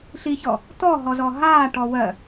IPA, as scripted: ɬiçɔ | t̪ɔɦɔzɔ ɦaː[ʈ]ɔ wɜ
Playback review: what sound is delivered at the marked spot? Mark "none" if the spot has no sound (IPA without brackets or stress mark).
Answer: ʈ